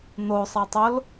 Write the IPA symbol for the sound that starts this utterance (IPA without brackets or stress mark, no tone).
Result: n̪